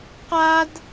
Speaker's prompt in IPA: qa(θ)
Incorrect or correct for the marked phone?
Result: incorrect: d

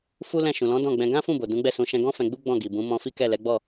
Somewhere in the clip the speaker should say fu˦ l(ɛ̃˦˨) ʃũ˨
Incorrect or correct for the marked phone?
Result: correct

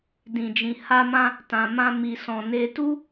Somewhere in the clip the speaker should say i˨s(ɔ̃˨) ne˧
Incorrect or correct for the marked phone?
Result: correct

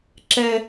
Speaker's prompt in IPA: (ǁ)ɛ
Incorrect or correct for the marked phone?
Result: correct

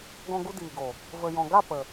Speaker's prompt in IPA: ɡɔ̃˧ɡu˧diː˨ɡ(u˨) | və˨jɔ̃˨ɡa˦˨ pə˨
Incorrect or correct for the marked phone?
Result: incorrect: o˨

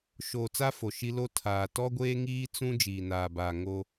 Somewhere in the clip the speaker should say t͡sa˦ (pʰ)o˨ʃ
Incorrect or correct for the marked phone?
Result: incorrect: f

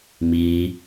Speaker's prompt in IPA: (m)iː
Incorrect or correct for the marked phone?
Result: correct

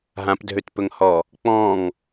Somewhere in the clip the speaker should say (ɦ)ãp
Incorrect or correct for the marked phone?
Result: correct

